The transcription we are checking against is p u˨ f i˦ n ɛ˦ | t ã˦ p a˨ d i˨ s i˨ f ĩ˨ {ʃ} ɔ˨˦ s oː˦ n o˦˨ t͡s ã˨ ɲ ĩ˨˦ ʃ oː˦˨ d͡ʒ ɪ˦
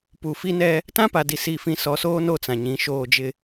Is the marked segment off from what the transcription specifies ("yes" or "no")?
yes